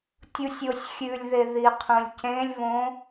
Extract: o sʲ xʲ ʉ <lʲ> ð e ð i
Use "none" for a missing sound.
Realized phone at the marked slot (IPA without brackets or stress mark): lʲ